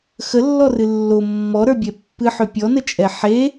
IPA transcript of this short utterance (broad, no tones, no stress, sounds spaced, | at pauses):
x ə lː ɔ r ɨ lː o mː ɔ ɾ ə˞ bʲ ɛ pː ɨ ħ ø pʲ ɔ n ə t͡ʃʼ ɛ ħ e